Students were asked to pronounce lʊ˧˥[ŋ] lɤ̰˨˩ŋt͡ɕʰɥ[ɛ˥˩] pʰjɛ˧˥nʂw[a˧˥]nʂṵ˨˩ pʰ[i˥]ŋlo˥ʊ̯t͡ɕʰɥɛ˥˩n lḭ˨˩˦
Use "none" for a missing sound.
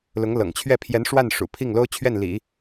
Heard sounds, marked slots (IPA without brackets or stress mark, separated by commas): ŋ, ɛ˥˩, a˥˩, i˥˩